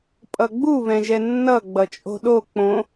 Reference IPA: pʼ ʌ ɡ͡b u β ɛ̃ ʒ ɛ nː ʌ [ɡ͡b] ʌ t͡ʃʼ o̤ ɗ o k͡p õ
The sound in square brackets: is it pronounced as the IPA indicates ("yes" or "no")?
yes